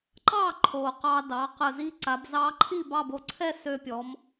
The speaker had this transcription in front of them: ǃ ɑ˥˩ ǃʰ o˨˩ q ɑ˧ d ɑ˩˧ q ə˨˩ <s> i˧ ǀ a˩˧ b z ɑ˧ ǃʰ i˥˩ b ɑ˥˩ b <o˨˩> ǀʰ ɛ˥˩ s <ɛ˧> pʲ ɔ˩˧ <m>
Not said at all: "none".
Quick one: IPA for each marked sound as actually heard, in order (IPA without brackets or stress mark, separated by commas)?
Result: z, o˩˧, ø˧, m